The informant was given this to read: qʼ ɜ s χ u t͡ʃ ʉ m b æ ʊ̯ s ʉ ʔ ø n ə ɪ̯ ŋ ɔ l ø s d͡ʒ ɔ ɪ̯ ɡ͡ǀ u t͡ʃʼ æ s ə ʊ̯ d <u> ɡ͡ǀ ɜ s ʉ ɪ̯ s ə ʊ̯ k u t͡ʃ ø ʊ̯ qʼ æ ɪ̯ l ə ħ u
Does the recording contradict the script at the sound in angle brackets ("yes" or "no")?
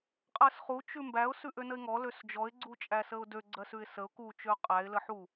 yes